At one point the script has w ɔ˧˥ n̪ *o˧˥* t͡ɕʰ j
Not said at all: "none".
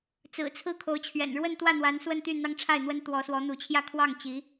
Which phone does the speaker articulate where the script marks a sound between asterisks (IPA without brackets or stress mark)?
u˧˥